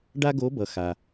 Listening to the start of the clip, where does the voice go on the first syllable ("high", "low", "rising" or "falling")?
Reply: high